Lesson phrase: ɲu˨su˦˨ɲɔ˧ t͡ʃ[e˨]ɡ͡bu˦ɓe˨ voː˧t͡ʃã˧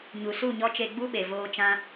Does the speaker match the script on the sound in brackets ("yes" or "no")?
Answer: no